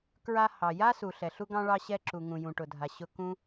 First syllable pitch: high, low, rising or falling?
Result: high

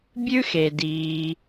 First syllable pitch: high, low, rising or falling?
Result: high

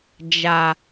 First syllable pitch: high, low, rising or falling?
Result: low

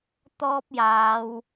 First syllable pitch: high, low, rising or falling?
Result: high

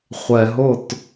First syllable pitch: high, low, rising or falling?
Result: low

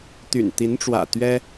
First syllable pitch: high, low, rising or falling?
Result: low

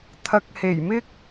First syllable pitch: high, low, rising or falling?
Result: low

